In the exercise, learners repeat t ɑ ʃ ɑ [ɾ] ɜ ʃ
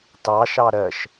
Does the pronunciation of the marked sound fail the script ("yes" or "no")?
no